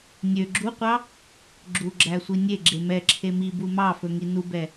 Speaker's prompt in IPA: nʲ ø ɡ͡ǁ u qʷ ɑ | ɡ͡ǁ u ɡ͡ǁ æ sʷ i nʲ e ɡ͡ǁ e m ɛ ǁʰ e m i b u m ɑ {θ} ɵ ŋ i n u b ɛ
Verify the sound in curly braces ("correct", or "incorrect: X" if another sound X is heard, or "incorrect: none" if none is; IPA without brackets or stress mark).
incorrect: f